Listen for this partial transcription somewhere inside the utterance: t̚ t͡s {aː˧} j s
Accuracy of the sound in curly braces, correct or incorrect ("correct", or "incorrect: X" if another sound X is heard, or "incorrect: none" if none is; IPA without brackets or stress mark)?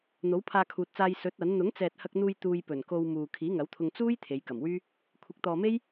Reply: correct